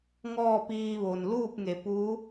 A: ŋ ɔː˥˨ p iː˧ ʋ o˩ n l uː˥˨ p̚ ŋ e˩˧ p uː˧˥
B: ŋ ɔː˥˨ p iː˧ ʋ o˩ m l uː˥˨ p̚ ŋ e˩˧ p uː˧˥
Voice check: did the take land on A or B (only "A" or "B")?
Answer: A